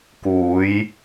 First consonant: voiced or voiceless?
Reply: voiceless